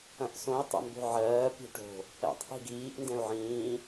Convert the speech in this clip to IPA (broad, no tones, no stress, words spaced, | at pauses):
ɐ̃ʔsõi̯ tˤɛ̰mbo̤ʕɜː pi̤ʈo̤ | ɛ̰tˤ ʔi̤ɡiːʔ ndɛ̃u̯ʕĩː